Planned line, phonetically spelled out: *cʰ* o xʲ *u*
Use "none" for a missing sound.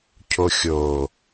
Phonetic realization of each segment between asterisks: cʰ, o

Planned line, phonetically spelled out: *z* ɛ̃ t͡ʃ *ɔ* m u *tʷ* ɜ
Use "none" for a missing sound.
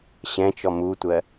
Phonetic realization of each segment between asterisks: ɕ, ɔ, tʷ

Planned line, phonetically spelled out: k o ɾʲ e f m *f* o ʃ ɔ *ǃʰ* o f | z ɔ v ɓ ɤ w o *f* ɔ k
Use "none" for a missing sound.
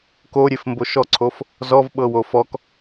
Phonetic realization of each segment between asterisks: b, ǀʰ, f

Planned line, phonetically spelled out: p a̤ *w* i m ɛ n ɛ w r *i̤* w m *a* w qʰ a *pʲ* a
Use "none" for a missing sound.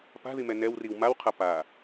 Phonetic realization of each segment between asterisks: ð, i, a, p

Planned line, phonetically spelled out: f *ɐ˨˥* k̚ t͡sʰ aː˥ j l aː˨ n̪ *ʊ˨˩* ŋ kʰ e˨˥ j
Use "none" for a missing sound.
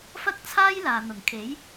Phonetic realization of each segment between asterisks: ɐ˥, ʊ˨˩

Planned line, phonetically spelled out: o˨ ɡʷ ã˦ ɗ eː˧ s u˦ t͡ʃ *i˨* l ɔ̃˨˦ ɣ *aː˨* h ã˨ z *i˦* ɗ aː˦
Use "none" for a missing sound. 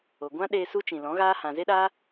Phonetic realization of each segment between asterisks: ĩ˨, aː˦, e˦

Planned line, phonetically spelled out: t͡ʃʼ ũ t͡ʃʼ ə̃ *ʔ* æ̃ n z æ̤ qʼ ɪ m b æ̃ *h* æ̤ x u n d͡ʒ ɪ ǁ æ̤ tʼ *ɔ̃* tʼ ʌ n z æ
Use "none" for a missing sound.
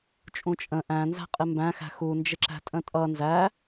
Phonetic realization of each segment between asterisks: ʔ, x, ə̃

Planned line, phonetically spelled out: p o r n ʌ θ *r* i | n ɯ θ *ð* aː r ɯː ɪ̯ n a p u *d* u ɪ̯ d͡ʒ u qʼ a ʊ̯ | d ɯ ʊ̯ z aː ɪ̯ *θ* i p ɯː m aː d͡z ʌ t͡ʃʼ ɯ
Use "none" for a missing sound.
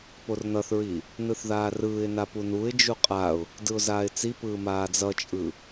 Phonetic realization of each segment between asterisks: ɹ, ð, n, t͡s

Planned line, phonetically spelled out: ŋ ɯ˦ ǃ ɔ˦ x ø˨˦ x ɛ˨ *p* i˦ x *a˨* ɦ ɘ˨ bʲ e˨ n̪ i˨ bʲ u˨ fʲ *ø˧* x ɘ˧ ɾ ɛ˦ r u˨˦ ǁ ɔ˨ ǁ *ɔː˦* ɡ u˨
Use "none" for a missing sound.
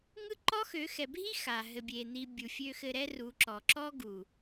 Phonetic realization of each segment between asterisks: bʱ, a˨, ø˧, ɔ˦

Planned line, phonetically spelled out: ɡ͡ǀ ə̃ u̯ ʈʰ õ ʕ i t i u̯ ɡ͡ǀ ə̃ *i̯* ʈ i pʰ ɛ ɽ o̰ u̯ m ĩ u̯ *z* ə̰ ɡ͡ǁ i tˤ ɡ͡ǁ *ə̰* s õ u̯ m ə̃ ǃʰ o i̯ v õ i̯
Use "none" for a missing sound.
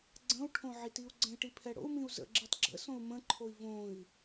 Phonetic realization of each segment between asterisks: i̯, z, ə̰

